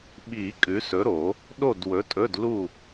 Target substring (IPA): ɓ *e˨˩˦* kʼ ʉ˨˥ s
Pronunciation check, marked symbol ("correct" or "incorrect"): incorrect